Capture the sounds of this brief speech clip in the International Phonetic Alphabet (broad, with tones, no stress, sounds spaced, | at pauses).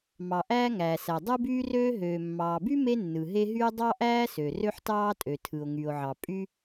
m ɑ˩ ʔ æː˥ ŋ æː˩ s æ˩ dˤ ɯ˥ b yː˥ r øː˥ ɦ øː˩ mː ɑː˩ b y˥ m e˥ nː ɯ˩ ɦ e˥ ɦ y˥ dˤ ɑ˥ ʔ æː˥ s ø˩ r ø˥ ħ t ɑː˥ tʼ ø˩ tʰ ɯ˩ o̯ ŋ y˩ o̯ ʕ ɑ˩ pʼ y˥